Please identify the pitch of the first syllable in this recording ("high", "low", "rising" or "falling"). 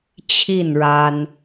falling